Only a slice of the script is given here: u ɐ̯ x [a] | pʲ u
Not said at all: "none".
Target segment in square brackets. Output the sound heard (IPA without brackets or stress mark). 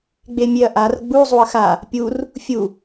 a